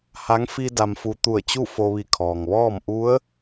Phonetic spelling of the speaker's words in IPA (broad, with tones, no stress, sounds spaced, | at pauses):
h a˧˥ ŋ f i˧ d a˧ m f u˧ t̪ u˧˩ ə̯ t͡ɕ u˥˨ f o˧ ʋ i˧˩ kʰ ɔː˩ ŋ ʋ ɔː˥˨ m ʔ u˧˥ ə̯